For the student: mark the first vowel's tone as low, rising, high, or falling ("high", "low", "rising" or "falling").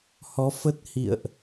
rising